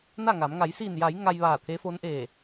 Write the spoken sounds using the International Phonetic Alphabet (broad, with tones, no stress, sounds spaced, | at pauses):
n a˥˨ ŋ a˩˧ m ŋ a˩˧ j s iː˧˩ n j a˩˧ j ŋ a˧ j ʋ aː˧˩ t̪ʰ e˧˥ f o˧˥ n ʔ eː˧˩